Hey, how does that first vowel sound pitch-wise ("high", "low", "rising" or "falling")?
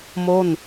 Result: falling